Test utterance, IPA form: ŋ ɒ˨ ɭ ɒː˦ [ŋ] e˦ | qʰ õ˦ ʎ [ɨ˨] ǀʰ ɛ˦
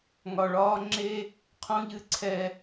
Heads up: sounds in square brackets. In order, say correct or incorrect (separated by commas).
incorrect, incorrect